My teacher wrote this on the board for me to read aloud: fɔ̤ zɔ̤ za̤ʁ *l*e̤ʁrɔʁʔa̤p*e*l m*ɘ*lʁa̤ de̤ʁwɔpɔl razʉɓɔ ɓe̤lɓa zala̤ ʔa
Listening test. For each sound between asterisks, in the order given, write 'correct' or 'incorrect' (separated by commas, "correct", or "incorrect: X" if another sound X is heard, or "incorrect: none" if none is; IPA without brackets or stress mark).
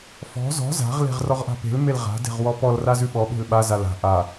correct, incorrect: e̤, incorrect: e